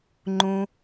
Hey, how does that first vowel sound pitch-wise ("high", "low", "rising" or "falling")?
high